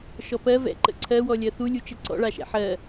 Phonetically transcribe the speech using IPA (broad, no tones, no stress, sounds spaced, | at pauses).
ʃ ɔ p ɜ v ɛ̰ ǃ ə̰ ǀʰ ɜ w ɔ lʲ ɜ θ u lʲ u t͡ʃ ə ǀ ɔ̰ ɭ a ʃ ɛ̰ ħ ɜ